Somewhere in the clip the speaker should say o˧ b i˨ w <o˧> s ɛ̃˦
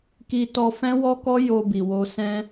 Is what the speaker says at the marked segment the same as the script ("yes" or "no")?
yes